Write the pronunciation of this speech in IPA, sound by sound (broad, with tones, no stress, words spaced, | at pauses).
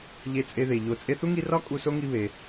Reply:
ʎe˦t͡sʼe˦ðe˨ ʎo˨ t͡sʼe˦θu˥ŋi˦rɒ˥ kʼu˦so˥ŋi˦ βe˨